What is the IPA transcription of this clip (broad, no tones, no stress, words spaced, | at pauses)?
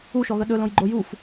uʃɔɣə ɗɵlõjɡ͡ǃo juf